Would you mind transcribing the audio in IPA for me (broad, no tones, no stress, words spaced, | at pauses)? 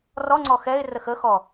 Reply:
rɔŋ͡ǀɔ xɛɪ̯ rəxəxɔ